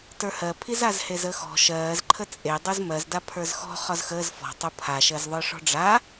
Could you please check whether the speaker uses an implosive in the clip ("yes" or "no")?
no